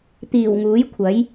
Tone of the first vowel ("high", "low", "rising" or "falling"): low